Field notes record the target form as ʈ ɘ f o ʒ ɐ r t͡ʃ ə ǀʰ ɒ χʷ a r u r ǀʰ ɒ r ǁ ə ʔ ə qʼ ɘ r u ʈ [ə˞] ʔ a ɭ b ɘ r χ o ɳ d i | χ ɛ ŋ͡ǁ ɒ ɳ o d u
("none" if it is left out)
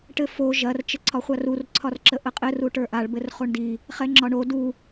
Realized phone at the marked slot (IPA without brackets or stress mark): ə˞